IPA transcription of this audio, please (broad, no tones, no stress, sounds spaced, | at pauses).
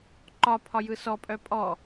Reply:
ǃ ɒ pʰ ɒ j ɯ s ɔ pʼ œ pʼ ɔ